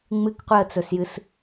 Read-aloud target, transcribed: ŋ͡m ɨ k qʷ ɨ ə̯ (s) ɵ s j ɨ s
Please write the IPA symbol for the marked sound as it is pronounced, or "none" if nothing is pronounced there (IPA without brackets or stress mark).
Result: t͡s